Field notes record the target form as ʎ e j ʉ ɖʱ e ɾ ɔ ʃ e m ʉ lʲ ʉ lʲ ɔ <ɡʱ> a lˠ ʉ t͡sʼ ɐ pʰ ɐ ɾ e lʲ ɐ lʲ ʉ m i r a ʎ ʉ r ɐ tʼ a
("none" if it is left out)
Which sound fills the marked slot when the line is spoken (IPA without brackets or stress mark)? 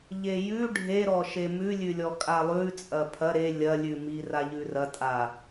kʼ